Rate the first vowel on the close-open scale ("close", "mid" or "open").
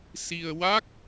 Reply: close